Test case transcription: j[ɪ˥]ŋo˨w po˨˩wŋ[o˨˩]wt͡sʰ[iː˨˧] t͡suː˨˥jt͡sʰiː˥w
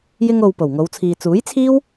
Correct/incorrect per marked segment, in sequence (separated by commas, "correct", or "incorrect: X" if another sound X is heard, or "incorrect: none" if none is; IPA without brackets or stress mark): incorrect: ɪ˧, incorrect: o˨˧, incorrect: iː˨